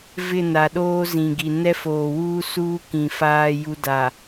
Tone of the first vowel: falling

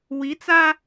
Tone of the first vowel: rising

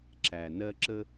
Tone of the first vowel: low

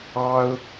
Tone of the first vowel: high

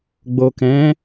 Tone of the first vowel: low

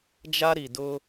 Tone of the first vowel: high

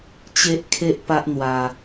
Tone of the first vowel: high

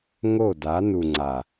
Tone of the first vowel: falling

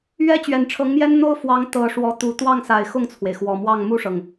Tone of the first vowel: high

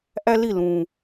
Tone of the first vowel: high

